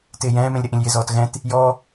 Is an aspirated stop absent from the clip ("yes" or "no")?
yes